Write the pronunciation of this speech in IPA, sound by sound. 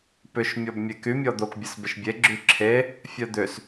p ʏ ʃ mʲ ɔ b mʲ e k y mʲ ɔ d̪ o k bʲ ə s b ɪ ʃ bʲ e ɡ͡ǁ y ǁʰ e | fʲ œ d̪ ʏ s

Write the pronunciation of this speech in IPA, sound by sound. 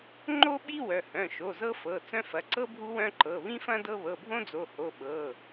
ŋ͡ǃ o˥ ɓ i˥ w œ˩˧˩ h œ̃˩˧˩ ʃ o˩˧˩ z ɤ˥ f ɤ˩˧˩ t͡s œ̃˥ f ɐ˩˧˩ ǀ ɤ˥ bʱ u˥ w œ̃˥ ǃ ɤ˩˧˩ β ĩ˥ f ɐ̃˥ d ɤ˥ β ɤ˩˧˩ bʱ õ˥ d͡z o˩˧˩ h o˩˧˩ ɓ ɤ˩˧˩

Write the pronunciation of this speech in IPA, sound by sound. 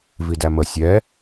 v i d æ m ə sʲ ɛ

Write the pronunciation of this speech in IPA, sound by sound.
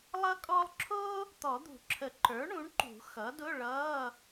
lˠ ʌ˥ kʼ ɔ˥ lˠ ǁʰ ʊː˥ | t̪ ɔ˨˩˦ d̪ ṳ˨˩˦ ǁʰ ə˨˩˦ ǃ ə˞˩˥ ɳ ũ˩˥ ɳ ǃ ṳ˨˩˦ x ʌ˩˥ d ʊ˧˥˧ ɭ ʌː˧˥˧

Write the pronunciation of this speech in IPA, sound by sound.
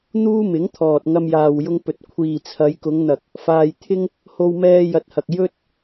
n̪ uː˥ m ɪ˨˥ ŋ t̪ʰ ɔː˨ t̚ ŋ ɐ˧ m j aː˨ w j ʊ˧ ŋ p ɵ˨ t̚ kʷʰ iː˨ t͡sʰ ɐ˨˧ j k ʊ˨˧ ŋ n̪ ɐ˨ k̚ | f aː˧ j t̪ʰ ɪ˥ ŋ | h o˧ w m ɛː˧ j ɐ˨˥ t̚ h ɐ˨ k̚ j ɵ˥ t̚

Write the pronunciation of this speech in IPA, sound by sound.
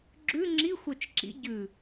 ɡ͡ǁ ʉ ŋ͡ǁ i xʷ œ t͡ʃ ǁ ḭ ɟ ʉ

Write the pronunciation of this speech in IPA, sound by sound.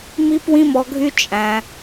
m i˦ p w ĩ˦ m ɔ˧ ɡʱ y˦ t͡ʃʼ æ̃˧

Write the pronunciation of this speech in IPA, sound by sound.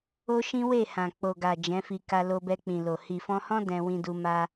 o˦ ʃ ĩ˦ w e˦˨ h ã˨ k͡p o˨ ɡ a˨ d͡ʒ ɛ̃˨˦ f i˧ k a˧ l o˧ b ɛ˧ k͡p ĩ˨ l o˨ h i˨ f ɔ̃˧ h ɔ̃˦ d ɛ̃˧ w ĩ˧ d u˧ m a˧

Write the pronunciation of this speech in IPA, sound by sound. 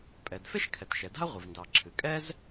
pʼ ɛ˩ d f e˥ ʃ kʰ ɛ˩ t ʃ ɛ˩ d a̤˥ ɐ̯ ʁʷ ɨ˩ v n d ɑ˩ ǁʰ ɨ˩ kʼ ɛ˥ z

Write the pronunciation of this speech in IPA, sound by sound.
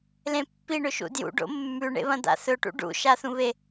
l ẽ pː i ɳ ɵ ʃ ṵ d j ṵ ɖ o̰ mː ʉ ɳ ḛ β ɐ̃ d̪ a̰ θ ɵ ʈ ṵ ɖ ṵ ʃ a θ ũ β e

